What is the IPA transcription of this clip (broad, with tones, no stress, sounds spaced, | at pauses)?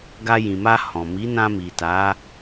ɡ a˧ j ĩ˨ m a˧ h ɔ̃˨ m i˨˦ n ã˧ m i˨ t a˨˦